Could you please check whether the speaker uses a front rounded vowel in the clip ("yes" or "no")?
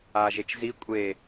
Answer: no